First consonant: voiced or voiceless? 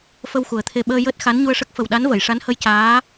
voiceless